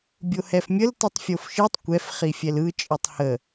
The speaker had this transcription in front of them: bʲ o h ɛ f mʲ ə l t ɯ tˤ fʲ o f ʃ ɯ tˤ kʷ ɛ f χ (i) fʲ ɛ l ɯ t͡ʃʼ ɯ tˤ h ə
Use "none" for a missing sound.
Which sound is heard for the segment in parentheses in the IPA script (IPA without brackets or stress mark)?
i